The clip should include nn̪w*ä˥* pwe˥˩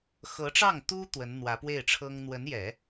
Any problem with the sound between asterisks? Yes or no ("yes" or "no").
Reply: yes